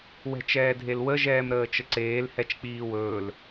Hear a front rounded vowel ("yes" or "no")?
no